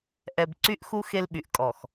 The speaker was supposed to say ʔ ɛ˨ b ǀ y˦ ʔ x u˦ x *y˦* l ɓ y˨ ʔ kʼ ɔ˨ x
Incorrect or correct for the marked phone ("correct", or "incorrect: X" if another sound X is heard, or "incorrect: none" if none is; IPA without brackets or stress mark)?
incorrect: e˦